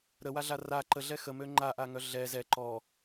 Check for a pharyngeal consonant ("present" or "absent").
absent